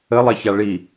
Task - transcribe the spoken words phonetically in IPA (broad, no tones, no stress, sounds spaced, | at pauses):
ə lˠ ɛ ç a ɭ i